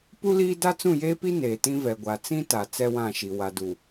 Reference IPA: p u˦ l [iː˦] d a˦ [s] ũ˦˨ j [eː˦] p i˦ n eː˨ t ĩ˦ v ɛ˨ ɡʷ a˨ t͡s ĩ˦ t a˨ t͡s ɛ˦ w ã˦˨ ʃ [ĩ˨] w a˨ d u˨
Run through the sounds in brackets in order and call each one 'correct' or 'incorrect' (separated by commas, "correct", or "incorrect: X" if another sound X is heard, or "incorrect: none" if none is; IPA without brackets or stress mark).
correct, incorrect: t͡s, correct, incorrect: i˨